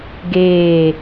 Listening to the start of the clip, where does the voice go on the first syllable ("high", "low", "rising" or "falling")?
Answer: falling